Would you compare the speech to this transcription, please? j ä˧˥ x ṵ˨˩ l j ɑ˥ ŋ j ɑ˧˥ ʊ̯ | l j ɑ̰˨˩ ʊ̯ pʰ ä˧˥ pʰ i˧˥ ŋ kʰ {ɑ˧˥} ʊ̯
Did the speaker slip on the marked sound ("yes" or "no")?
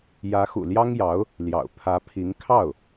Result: yes